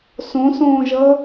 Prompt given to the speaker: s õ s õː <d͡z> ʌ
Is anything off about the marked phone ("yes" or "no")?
yes